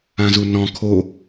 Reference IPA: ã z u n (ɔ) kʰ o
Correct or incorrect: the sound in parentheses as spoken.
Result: incorrect: ɔ̃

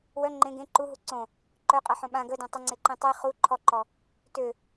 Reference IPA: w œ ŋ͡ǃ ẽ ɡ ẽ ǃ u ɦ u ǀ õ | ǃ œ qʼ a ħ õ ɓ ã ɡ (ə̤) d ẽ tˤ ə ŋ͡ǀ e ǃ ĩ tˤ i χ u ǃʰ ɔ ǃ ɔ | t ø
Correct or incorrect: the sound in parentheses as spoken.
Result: incorrect: ə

